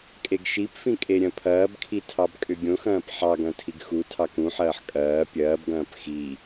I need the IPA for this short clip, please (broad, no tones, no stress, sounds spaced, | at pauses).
kʼ e ɡ ʃ i p f ĩ kʼ e ɾʲ ɐ̃ pʰ ɐː b kʰ i tʰ ɑ b kʼ ʏ ɡʲ õ x ɐ̃ː p ħ ɑ ɡ ɐ̃ tʰ i ɡ x u tʰ ɑ k ũ ħ ɐː ħ kʼ ɐː pʲ ɐː b ɡ ɐ̃ː p x i